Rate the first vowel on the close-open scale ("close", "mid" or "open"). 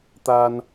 open